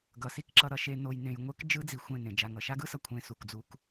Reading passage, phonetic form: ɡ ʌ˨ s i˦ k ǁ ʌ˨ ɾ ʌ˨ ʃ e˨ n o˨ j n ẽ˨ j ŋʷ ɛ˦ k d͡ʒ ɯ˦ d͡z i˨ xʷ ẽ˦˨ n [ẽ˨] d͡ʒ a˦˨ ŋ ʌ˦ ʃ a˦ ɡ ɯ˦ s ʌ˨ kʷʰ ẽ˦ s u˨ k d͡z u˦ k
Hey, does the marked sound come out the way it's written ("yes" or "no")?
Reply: yes